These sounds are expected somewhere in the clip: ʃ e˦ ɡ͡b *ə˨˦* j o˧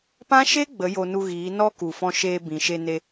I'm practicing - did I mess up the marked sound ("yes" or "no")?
no